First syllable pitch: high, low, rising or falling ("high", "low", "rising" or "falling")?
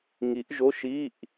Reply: rising